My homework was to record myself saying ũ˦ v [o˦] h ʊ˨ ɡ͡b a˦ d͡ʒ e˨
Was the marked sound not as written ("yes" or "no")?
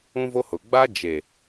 no